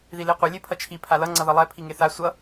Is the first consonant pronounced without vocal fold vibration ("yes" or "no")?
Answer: no